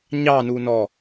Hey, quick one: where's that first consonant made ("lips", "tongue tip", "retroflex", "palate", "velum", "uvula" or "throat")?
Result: palate